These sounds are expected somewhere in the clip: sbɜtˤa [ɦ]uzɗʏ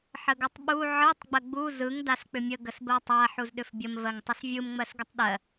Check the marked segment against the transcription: incorrect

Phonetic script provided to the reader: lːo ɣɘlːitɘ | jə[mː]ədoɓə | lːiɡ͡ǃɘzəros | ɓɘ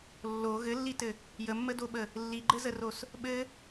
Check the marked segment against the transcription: correct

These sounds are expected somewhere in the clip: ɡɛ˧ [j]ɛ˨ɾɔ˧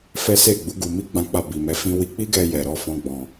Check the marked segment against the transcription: correct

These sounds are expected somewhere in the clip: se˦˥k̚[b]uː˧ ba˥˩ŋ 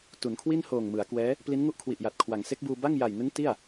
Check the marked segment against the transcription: correct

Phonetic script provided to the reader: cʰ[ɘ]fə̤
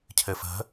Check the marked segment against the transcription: correct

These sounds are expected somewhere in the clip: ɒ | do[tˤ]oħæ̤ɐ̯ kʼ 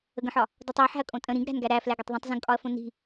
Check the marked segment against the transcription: correct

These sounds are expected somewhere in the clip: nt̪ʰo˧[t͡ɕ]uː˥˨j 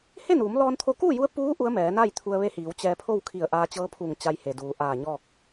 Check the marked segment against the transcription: incorrect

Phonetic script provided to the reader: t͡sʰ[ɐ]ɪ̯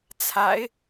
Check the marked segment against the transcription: incorrect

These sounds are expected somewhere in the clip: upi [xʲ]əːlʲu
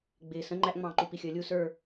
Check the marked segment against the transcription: correct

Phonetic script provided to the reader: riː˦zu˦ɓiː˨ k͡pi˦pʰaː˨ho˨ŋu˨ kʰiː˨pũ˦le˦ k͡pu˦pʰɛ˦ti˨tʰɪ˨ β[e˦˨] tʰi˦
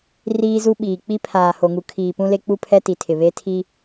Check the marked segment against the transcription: incorrect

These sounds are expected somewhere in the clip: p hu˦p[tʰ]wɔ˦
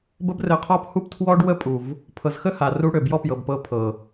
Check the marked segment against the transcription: correct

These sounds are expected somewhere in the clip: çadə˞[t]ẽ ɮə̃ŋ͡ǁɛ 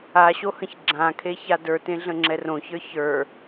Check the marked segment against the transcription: correct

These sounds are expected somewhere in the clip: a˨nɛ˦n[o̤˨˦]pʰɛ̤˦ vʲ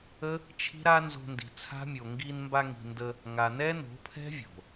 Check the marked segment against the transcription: correct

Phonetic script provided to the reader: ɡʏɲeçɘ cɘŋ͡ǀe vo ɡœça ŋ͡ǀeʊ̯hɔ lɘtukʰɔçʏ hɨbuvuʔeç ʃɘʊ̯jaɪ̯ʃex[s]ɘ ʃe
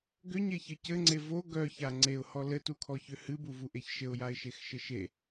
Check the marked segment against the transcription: incorrect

